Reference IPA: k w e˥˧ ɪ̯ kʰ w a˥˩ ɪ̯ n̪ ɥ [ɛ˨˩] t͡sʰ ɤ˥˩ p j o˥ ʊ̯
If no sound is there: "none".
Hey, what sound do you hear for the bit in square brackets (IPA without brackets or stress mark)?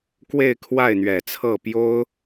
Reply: ɛ˨˩